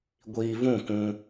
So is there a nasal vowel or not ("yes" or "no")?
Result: yes